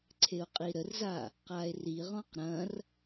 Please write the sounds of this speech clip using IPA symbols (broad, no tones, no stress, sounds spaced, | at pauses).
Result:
ǀʰ e o̯ qʼ i ɾ ə r z a | q a e̯ r i ʁ ɔ̃ q ɾ ɐ̃ r